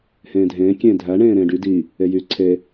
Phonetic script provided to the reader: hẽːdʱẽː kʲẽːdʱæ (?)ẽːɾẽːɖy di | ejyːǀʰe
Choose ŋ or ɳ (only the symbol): ɳ